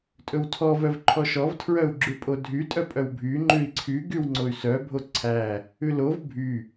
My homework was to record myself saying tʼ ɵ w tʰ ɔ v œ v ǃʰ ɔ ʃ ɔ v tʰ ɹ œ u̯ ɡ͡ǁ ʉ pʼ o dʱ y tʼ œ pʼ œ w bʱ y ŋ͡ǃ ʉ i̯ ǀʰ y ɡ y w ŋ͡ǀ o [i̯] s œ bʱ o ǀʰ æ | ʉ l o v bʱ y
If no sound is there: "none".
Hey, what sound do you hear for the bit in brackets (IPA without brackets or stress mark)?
y̯